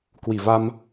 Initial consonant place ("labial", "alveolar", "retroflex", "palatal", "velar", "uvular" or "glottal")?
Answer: velar